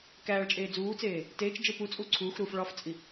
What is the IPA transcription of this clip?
k æː ɭ t͡ʃʼ eː d͡z uː t͡s eː | t eː t͡ʃ d͡ʒ e p u t͡sʼ u ǀʰ uː x ɾ uː f ɭ ɒ f t͡sʼ i

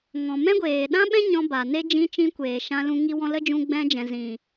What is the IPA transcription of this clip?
ŋ ɔ̃˨ m ɛ̃˦ ɡʷ eː˨ ɗ ã˦ ɓ ɛ̃˦ ɲ ɔ̃˧ b a˨ n e˦ d͡ʒ ĩ˧ t͡ʃ ĩ˧ kʷ eː˨ ʃ ã˧ l ũ˧ ŋ i˧ w ɔ̃˧ l ə˦ d͡ʒ ũ˧ ɡ͡b ɛ̃˧ d͡ʒ ɛ̃˨ z ĩ˨

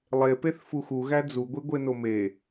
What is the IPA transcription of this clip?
lˠ e p e θ f u x u ɣ æ d͡z u ɡʷ i ɡʷ e n o m e

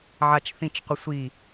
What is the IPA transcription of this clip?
ʕ a t͡ʃ θ ĩ t͡ʃ qʷ ə sʷ i

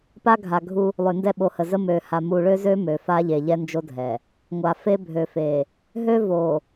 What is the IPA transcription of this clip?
p a˦ ɡʱ a˨ ɡʱ u˦ | lˠ ø˨ n d ɛ˦ ɓ o˨ h ə˨ z ə˦ m ø˨ h a˨ m u˨ ɭ ø˦ z ø˦ m ø˨ f a˦ ʎ e˨ ʎ ɛ˦ n d͡ʒ o˦ dʱ ɛ˨ | ŋʷ a˨ f e˦ bʱ ø˨ f e˨ | ɦ ø˦ v o˨

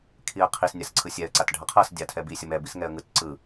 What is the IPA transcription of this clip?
kʰ i ə̯ qʰ i s nʲ a s ǀʰ ɯ sʲ ɛ ə̯ ǀ a t ɖʱ ʌ qʰ ʌ s dʲ a tʰ ɛ b i sʲ ʌ m ɛ b i s ŋ ɛ ə̯ ŋ ɯ t ǀ ɯ

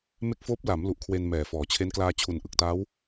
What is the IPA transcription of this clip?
m e˦˥ k̚ f oː˦˥ p̚ l a˩˦ m l u˨˩ ʔ kʰ w e˧ n m ɛː˨˩ f ɔː˩˦ t͡ɕʰ e˦˥ n k l aː˧ t͡ɕʰ u˨˩ n ʔ ɯ˨˩ k̚ t aː˦˥ w

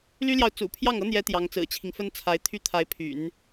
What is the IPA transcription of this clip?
l y˥ l j ɑ˨ ʊ̯ t͡s ṵ˨˩ pʰ j ɑ˥˩ ŋ ɤ˥ n̪ j ɛ˧˥ t̪ j ɑ˧˥ ŋ t͡s ɹ̩˨˩ t͡ɕʰ i˦ ŋ f ə˥ n t͡sʰ a˧˥ ɪ̯ t̪ʰ y˥ t̪ʰ a˧˥ ɪ̯ pʰ y̰˨˩˦ n

